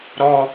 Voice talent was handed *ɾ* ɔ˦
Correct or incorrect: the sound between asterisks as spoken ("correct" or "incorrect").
correct